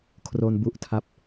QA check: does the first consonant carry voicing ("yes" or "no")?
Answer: no